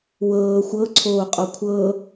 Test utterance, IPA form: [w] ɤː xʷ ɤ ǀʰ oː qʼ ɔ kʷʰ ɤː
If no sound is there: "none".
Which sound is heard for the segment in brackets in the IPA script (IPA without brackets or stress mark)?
w